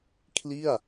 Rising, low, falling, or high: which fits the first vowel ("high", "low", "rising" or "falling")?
falling